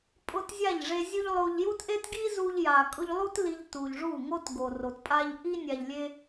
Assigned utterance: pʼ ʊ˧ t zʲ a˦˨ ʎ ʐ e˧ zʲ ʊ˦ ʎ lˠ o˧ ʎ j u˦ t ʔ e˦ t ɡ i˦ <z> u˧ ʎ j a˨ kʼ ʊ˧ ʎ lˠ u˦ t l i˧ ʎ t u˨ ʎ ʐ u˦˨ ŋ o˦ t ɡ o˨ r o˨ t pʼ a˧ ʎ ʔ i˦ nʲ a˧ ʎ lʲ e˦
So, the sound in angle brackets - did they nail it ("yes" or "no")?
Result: yes